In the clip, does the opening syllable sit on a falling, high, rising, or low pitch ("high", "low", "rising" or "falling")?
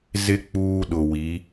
high